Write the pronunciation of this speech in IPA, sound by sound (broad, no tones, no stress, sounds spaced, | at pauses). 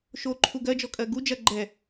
ʃ o ǃʰ u ɡ ɜ d͡ʒ ɔ kʼ ɜ ɡ u d͡ʒ ɐ ɡ͡ǃ ɛ